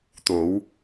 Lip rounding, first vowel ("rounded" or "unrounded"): rounded